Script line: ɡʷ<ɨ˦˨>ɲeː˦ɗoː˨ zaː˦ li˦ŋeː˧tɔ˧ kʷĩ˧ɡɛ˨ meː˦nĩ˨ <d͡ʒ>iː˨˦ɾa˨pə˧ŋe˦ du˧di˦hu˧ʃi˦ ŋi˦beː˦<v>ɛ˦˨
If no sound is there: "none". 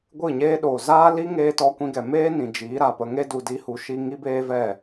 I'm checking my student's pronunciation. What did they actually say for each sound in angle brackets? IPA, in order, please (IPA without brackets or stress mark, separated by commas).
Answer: ɨ˦˨, d͡ʒ, v